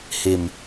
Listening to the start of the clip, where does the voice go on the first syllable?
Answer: low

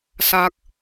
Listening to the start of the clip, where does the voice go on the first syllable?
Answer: low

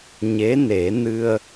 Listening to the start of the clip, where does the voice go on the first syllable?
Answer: rising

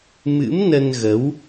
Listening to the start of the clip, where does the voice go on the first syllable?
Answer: rising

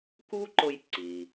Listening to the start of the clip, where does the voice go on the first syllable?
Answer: high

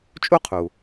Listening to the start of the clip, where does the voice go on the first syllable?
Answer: high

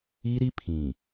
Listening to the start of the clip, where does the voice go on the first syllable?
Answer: high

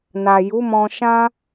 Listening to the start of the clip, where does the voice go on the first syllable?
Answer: low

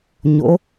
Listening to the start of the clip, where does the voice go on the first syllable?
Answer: rising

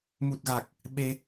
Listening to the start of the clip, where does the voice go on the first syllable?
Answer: low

